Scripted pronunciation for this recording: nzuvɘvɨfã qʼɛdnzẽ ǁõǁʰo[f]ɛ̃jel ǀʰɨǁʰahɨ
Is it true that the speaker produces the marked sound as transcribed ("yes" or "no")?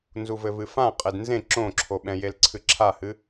no